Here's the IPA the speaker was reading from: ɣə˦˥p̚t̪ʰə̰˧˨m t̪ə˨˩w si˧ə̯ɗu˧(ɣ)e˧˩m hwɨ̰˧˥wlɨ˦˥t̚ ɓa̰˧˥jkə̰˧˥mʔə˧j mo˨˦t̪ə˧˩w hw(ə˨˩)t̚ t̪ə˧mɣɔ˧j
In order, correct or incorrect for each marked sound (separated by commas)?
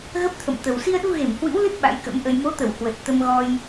correct, correct